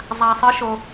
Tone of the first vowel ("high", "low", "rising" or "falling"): low